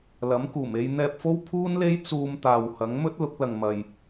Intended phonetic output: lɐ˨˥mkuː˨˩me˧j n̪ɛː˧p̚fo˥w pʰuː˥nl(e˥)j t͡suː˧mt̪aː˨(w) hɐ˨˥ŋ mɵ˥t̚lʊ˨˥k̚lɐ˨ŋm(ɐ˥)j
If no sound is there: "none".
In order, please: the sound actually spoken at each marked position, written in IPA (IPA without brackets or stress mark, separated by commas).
e˥, w, ɐ˨